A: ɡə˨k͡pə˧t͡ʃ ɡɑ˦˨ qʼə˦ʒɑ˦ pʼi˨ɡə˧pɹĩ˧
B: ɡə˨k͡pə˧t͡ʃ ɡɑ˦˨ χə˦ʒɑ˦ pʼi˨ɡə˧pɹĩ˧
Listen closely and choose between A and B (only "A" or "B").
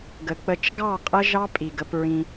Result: A